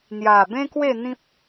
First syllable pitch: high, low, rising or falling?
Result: low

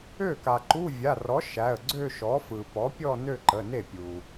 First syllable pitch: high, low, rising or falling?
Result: falling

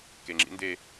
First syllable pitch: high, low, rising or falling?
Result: low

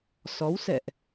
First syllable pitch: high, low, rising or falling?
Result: rising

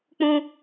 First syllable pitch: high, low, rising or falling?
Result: high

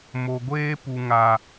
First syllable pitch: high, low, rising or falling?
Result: low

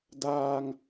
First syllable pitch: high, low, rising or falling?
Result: high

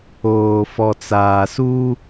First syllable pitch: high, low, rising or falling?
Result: low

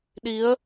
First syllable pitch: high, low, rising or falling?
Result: rising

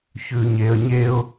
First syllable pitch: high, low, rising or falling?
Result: low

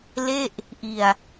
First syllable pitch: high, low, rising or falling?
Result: falling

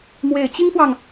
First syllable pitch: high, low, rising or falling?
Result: low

